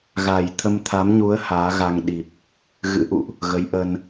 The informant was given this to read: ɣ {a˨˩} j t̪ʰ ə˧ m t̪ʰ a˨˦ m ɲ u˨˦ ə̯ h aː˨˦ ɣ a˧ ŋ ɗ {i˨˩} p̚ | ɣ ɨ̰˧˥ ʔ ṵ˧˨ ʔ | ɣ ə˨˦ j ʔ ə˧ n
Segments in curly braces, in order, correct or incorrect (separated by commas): correct, correct